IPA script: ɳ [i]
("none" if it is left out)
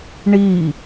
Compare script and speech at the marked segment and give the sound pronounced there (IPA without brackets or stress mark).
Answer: i